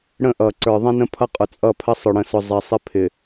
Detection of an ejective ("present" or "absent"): present